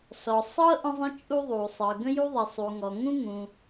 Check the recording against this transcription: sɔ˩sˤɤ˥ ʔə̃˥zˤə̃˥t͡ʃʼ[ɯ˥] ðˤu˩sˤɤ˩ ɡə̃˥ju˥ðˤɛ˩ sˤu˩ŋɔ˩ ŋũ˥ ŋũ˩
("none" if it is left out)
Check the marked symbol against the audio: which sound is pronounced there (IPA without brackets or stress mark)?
u˥